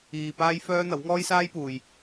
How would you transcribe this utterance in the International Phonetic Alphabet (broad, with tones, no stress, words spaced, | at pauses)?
iː˨ paː˥jfœː˥n̪ɐ˨˥w ŋɔː˥jsaː˥jpuː˨j